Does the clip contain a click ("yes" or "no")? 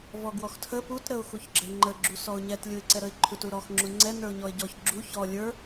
yes